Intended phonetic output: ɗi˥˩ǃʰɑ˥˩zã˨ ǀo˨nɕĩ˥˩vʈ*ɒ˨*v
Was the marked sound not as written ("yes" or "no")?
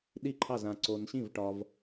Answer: no